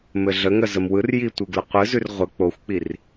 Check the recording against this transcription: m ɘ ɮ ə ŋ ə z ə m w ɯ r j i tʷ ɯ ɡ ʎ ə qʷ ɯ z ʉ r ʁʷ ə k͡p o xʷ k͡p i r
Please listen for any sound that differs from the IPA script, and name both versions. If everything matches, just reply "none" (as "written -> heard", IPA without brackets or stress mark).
ʎ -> l